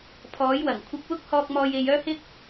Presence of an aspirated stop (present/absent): present